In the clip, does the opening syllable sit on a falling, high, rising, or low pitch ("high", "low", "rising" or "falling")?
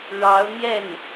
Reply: rising